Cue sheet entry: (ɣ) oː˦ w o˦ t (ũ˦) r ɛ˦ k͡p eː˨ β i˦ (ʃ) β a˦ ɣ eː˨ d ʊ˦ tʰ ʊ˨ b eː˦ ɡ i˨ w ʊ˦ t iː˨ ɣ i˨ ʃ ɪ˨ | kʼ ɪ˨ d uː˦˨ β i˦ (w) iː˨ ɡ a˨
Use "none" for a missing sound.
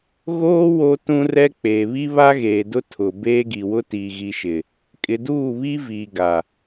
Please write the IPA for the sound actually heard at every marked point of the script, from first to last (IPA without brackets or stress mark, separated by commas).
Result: ɣ, ũ˦, none, v